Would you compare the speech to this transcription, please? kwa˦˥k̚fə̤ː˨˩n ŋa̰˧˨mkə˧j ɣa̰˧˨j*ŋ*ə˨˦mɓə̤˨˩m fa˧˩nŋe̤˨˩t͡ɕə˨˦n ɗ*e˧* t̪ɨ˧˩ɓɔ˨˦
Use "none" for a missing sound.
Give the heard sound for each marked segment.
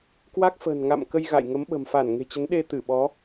ŋ, e˧

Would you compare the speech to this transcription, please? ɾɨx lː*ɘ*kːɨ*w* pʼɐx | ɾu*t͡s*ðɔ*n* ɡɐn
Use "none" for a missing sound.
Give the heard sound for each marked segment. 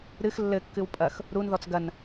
ɘ, w, n, t͡s

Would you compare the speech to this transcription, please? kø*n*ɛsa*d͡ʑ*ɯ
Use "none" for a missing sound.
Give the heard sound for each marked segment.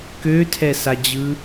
tʰ, d͡ʑ

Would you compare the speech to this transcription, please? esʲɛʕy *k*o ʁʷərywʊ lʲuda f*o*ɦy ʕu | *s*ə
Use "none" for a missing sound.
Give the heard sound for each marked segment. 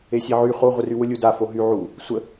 χ, o, sʷ

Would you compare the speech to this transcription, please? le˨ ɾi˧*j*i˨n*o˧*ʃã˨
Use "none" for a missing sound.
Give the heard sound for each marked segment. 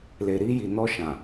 j, ɔ˧

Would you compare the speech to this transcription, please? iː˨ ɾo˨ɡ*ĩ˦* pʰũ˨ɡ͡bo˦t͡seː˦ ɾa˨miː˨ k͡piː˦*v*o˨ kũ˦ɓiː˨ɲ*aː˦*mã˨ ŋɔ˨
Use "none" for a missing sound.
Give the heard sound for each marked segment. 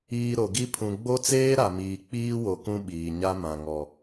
i˦, w, a˦

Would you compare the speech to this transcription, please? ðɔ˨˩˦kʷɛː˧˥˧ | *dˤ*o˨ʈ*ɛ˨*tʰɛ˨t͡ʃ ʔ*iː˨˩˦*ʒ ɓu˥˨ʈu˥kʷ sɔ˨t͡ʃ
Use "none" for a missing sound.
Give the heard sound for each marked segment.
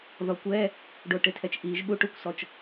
ɖ, ɪ˨, iː˨˩˦

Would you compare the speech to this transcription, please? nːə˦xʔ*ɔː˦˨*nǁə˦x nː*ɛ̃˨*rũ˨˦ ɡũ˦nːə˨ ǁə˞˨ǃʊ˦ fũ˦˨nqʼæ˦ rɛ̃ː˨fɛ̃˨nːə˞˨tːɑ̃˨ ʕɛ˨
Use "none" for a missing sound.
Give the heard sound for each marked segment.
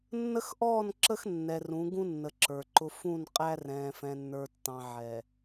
ɔː˦˨, ɛ˨

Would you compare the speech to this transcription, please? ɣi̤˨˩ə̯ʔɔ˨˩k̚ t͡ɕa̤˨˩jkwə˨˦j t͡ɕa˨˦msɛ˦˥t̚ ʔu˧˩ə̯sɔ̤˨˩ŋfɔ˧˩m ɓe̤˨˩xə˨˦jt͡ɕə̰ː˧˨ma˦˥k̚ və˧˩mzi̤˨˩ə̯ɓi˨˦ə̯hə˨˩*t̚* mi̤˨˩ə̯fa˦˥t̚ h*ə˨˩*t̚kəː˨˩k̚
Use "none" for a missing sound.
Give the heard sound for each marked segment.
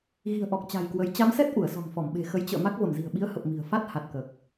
p̚, a˨˩

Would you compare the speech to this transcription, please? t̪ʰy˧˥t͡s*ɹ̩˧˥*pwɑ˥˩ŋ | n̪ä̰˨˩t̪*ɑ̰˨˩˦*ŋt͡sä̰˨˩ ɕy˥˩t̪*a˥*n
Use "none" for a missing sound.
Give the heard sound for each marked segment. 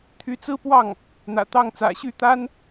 ɹ̩˥, ɑ˥˩, a˥

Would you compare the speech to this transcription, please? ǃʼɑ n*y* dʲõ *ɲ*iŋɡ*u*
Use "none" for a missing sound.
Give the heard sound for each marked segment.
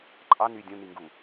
y, n, u

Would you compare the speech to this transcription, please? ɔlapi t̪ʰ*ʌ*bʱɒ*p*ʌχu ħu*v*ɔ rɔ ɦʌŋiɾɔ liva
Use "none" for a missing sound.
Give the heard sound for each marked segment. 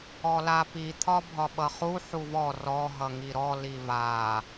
ɒ, ɓ, v

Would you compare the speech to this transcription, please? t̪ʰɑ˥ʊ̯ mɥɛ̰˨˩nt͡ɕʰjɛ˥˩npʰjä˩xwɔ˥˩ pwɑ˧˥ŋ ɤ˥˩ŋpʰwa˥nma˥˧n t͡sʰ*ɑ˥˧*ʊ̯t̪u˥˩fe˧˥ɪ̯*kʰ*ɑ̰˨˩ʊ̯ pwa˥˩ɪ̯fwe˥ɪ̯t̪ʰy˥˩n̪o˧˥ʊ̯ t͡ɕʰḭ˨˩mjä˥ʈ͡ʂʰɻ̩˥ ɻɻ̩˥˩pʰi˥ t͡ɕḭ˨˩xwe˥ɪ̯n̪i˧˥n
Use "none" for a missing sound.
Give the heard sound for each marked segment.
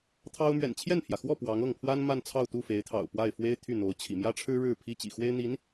ɑ˥˧, t̪ʰ

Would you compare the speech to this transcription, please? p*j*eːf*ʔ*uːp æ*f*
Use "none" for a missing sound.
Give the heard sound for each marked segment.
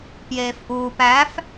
j, ʔ, f

